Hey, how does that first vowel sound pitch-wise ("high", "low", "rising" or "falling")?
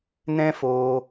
high